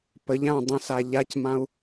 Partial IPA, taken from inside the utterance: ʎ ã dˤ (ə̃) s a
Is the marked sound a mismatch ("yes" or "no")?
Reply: no